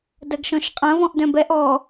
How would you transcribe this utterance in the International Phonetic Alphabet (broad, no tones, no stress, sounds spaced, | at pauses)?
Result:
d ɐ ɡ ʃ ɔ̃ ʃ qʼ ɐ̃ v ɔ̃ ʔ d œ̃ b ɛ ʔ ɔ